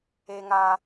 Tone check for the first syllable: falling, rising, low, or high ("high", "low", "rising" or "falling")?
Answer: high